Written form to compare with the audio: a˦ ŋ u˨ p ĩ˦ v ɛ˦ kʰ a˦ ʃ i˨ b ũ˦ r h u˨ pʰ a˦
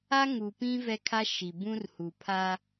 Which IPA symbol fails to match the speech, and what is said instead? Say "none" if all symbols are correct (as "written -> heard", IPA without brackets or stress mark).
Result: none